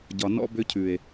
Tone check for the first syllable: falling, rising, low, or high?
low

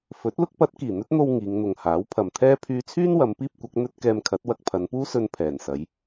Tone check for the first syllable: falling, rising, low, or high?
rising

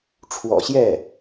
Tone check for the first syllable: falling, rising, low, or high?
low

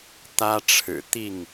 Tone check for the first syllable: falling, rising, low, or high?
high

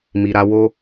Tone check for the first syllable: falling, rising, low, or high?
low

